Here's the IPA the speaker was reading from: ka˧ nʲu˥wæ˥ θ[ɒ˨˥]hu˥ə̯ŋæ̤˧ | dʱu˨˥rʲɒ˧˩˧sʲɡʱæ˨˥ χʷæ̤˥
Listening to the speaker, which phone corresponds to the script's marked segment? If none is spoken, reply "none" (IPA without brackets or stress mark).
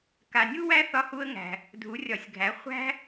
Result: ɒ˥